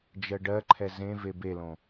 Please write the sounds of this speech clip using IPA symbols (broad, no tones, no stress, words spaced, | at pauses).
d͡ʒɜɖɜǃʰɛ zẽ vebelõ